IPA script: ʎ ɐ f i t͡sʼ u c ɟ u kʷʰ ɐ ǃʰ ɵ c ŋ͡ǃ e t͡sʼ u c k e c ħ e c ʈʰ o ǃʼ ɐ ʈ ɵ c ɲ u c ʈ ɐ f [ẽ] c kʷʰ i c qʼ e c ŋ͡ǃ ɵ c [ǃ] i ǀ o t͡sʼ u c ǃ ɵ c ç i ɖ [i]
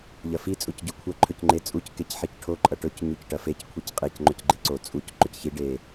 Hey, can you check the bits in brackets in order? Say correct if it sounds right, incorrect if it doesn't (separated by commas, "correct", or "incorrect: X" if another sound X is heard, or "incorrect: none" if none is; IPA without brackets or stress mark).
incorrect: e, incorrect: ɡ͡ǃ, incorrect: e